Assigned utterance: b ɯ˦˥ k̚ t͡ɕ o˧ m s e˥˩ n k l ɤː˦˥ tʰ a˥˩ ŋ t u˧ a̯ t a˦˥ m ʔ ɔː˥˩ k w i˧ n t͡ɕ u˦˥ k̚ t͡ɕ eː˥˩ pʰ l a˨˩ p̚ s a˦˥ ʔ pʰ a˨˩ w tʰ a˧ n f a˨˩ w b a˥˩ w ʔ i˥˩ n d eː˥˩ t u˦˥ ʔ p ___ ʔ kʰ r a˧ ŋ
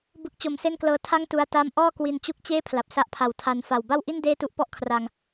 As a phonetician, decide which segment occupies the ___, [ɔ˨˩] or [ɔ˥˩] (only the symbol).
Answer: ɔ˥˩